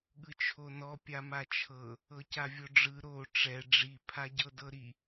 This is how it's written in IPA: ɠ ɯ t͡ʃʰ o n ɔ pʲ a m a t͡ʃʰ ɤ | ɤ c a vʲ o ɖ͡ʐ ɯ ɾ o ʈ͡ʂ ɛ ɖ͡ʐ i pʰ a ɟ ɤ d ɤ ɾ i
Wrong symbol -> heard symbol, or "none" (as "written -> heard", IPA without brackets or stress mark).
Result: none